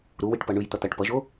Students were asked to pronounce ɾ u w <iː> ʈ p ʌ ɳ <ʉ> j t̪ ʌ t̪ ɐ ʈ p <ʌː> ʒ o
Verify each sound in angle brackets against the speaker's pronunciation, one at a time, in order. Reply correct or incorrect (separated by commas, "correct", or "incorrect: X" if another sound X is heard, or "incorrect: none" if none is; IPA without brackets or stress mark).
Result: incorrect: i, correct, incorrect: ʌ